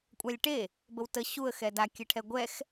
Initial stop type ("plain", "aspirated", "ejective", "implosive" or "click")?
ejective